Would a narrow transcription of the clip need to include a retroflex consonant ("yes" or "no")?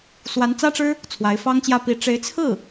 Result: yes